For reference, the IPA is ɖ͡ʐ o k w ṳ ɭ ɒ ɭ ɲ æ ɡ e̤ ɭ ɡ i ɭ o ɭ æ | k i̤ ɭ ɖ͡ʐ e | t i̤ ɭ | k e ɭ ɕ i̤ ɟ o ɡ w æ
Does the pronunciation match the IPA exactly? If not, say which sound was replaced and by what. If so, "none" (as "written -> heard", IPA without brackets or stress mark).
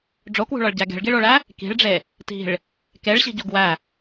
ɲ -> ɟ